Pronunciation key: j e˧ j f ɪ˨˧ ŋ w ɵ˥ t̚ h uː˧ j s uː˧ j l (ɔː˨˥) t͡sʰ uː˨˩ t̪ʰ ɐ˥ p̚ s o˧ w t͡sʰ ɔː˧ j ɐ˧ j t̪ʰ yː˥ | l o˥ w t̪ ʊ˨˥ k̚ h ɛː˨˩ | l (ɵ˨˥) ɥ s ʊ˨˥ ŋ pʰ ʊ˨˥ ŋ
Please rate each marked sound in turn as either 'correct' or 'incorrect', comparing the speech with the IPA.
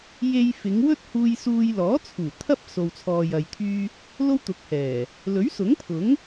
correct, correct

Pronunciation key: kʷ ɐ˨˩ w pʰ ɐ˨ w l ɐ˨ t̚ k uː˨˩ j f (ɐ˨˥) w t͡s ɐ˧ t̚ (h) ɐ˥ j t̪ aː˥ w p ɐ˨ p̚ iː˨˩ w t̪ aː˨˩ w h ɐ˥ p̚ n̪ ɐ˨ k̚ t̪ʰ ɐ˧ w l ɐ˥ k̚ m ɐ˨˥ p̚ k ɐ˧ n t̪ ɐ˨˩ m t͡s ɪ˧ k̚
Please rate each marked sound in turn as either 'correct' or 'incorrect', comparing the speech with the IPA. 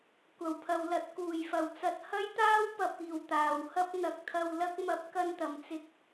incorrect, correct

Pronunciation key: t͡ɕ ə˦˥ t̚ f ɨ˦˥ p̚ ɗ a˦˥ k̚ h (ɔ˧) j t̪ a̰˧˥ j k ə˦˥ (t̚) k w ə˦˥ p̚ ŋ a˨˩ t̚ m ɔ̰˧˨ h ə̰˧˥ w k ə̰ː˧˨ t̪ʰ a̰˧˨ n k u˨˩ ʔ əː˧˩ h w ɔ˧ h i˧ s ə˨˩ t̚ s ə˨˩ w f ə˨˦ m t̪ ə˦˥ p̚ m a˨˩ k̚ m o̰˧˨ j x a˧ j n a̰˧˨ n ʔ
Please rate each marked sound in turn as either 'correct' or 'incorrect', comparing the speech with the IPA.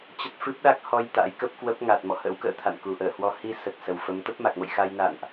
correct, incorrect

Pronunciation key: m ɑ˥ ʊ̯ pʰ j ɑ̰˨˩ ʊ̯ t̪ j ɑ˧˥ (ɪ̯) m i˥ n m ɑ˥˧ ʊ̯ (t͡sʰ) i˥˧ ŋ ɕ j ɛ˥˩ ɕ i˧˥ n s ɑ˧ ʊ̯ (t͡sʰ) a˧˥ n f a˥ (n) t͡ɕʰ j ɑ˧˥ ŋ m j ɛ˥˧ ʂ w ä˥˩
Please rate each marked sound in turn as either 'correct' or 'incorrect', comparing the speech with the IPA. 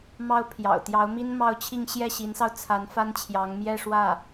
incorrect, incorrect, correct, correct

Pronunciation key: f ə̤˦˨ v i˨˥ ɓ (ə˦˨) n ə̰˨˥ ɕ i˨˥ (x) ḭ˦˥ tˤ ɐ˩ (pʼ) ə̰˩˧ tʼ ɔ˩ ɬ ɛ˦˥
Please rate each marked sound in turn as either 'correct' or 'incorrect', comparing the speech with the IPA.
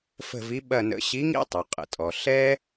incorrect, incorrect, incorrect

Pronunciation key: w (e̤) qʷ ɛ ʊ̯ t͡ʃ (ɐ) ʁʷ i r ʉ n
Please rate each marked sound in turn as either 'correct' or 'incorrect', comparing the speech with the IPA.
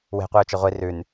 correct, correct

